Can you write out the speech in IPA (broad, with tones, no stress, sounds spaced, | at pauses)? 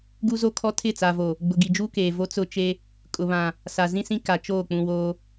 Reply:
ɡ u˦ z o˦ kʰ ɔ˦ tʰ ɪ˦˨ t͡s a˨ v o˨ | ɡ͡b ʊ˨ ɡ i˨ d͡ʒ uː˦ k eː˨ v o˦ t͡s ʊ˦ t͡ʃ e˦ | kʼ ʊ˨ β ã˨ | s a˨ z ĩ˦ s ĩ˦ k a˨ t͡ʃ oː˦˨ k͡p ũ˨ w oː˦